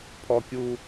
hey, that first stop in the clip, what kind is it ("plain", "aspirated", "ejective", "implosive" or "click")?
aspirated